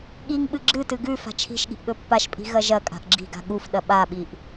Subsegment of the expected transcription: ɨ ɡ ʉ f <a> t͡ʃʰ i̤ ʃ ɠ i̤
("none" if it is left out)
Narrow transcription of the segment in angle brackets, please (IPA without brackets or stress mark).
a̤